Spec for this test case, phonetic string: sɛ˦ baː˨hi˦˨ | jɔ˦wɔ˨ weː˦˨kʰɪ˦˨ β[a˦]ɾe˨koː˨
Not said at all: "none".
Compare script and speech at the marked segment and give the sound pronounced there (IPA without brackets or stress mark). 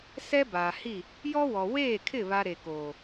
a˦